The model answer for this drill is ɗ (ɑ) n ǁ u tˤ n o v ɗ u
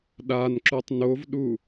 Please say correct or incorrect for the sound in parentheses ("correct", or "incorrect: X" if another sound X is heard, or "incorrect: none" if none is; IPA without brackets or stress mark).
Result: incorrect: a